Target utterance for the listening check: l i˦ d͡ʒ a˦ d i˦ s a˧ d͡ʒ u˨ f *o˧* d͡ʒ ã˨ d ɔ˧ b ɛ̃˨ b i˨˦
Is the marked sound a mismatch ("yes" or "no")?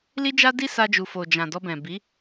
yes